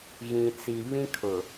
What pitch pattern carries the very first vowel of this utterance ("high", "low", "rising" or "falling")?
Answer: low